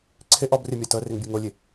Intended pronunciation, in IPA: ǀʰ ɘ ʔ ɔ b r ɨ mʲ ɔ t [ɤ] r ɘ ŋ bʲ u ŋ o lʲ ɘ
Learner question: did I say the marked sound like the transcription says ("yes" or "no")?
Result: yes